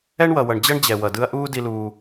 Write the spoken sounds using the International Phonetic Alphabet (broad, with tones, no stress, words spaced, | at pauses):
ɛ˦ɳwʌ˨wʌ˨ɳ d͡ʑʌ˦ɳd͡ʑɛ˨ wʌ˨dɯ˦ɐ̯ ʔuː˦ di˦luː˦